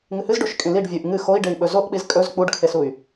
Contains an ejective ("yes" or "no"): yes